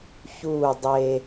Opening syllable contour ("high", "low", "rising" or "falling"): falling